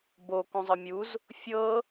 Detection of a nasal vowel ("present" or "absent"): present